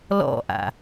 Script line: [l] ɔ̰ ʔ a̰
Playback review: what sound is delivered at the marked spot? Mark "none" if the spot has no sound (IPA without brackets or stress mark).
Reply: l